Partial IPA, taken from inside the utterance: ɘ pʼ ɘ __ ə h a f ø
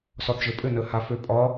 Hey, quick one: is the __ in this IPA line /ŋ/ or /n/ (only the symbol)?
n